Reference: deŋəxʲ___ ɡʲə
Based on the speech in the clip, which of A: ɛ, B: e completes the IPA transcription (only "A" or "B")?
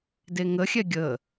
A